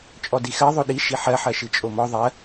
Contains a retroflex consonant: no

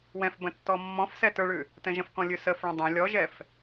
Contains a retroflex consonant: yes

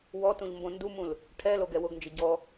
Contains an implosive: no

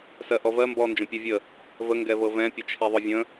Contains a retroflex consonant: no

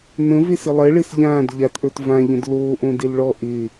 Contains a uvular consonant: no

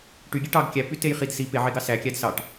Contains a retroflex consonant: yes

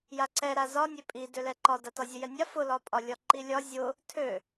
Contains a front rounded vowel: yes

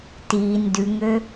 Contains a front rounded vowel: yes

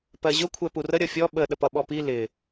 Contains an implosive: yes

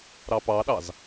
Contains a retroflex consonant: no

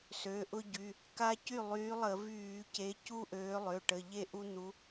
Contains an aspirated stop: no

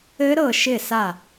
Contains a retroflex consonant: no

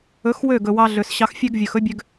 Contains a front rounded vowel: yes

